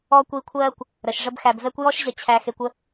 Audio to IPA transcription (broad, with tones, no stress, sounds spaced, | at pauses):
ɔ˥ kʷ i˦ kʷʰ ɜː˥ kʷ | ɾ ə˩ ʃ ʐ ə˦ b x æ˨ b v ɛ˥ kʷ j ɔ˥ ʃ ʑ ə˨ t͡ɕʰ æ˨ x e˨ kʷ ə˦